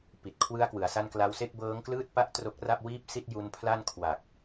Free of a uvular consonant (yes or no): yes